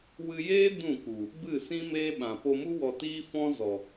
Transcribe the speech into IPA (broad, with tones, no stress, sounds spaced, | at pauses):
w ɨ˧ j eː˦ d ũ˦˨ k u˨ | b ɨ˦˨ s ĩ˦ m eː˦ ɓ ã˨ p o˧ m u˦ w ɔ˧ t iː˦ f ɔ̃˦ z ɔ˨